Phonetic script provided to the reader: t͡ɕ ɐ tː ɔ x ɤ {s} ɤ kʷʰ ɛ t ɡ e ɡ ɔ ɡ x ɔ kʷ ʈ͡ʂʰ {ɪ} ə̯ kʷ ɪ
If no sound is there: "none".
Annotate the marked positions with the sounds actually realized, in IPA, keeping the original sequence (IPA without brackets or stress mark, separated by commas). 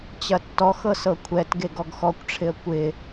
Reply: s, ɪ